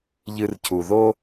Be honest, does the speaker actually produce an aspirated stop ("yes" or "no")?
yes